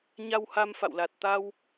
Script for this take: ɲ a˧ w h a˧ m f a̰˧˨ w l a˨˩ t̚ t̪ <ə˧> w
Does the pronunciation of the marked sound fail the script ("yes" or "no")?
yes